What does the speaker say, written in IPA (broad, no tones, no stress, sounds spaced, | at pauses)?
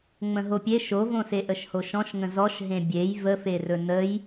ŋ͡m ə̃ ɦ o pʲ e ʃ o v õ s e ʔ ə ʃ h o ʃ ɔ̃ ʃ ŋ ə̃ z ɔ ʃ ɦ ẽ bʲ e j v ə f e r ɵ n ə j